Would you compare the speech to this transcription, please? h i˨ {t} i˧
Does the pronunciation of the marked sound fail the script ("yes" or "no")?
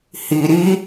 yes